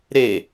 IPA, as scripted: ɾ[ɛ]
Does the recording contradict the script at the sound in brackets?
yes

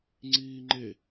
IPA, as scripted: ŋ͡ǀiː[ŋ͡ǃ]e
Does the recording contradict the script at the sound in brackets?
no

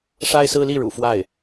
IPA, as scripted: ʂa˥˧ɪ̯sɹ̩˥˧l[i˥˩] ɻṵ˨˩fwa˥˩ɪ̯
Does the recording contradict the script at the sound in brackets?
no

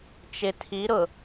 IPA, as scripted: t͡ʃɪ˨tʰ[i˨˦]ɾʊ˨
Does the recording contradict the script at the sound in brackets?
no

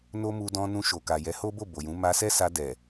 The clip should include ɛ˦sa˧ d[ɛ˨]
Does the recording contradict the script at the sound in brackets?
no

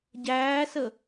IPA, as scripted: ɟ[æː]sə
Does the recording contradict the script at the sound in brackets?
no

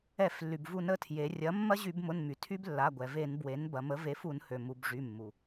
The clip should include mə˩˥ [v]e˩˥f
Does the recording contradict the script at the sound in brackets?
no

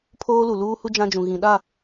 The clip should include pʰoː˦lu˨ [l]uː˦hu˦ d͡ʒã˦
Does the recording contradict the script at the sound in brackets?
no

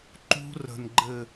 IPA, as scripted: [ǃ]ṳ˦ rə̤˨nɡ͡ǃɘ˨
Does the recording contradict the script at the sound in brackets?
no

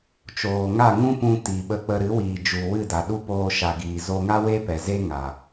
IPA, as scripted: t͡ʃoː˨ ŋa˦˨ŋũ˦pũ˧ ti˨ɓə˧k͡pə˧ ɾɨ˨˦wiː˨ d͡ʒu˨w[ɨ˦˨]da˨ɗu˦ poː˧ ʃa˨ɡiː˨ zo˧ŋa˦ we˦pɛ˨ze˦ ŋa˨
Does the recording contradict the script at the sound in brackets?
no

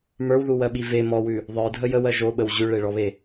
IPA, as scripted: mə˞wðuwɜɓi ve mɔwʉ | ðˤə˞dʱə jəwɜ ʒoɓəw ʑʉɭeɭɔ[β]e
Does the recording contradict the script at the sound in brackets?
no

